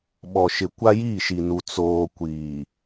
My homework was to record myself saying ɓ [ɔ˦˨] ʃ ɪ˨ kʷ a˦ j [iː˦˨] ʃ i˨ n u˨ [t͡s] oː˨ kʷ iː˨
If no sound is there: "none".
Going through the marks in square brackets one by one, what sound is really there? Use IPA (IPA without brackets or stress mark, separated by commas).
ɔ˨, iː˦˨, t͡s